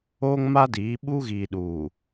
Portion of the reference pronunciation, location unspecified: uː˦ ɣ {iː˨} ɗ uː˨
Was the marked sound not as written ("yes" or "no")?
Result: no